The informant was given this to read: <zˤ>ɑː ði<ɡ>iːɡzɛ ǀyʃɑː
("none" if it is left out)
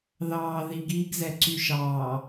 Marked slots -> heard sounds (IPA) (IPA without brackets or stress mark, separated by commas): ð, ɡ